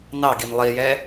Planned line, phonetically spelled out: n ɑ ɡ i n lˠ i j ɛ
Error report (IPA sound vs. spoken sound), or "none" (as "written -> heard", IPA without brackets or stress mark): none